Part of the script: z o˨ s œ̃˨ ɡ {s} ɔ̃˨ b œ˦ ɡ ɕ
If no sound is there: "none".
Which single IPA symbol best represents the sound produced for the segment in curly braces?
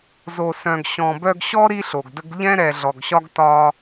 ɕ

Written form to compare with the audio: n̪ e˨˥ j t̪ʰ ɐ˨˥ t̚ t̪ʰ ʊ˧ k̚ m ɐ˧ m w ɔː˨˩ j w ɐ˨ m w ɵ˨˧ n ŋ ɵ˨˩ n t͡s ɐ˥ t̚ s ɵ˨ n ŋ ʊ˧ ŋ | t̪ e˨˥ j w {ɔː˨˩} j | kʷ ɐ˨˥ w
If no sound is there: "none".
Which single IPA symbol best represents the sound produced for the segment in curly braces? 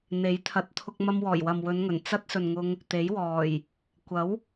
ɔː˨˩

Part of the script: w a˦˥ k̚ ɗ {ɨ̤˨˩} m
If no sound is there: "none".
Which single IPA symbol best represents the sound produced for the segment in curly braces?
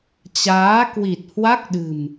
ɨ̤˨˩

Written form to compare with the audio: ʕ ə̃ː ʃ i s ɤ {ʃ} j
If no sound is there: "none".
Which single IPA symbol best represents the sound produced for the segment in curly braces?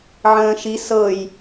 none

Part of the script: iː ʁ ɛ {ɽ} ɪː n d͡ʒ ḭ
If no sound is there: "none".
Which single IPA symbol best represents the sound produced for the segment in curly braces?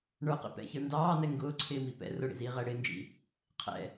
ɽ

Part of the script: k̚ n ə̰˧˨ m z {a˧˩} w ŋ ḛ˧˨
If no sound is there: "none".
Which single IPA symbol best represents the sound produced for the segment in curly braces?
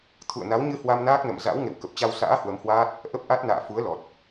a̰˧˥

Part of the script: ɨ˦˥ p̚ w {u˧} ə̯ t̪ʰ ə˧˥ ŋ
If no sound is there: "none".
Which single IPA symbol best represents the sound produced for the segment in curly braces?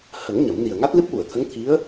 u˨˩˨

